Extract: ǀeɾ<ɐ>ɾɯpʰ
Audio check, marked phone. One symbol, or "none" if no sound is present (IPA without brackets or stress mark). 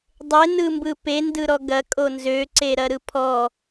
ɐ